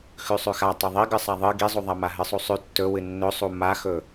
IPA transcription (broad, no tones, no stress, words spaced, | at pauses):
xʉsˤʉxa tˤeðˤiɡɨ sˤaðˤɨ ɡizˤuðˤama ɦɨsˤusˤʉ tːɵ wɨnːɵsˤu maxɵ